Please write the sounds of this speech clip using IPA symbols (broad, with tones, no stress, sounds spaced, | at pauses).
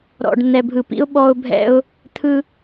ɾ ɔ̰˩ ɖ n̪ ɛ˩ bʱ ɯ˩ p ḭ˧ ʊ̯ ɓ ɔ˧ ʊ̯ bʱ ɛ̰˧ ʊ̯ | t̪ʰ ɯ˧